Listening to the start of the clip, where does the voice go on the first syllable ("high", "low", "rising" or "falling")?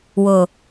low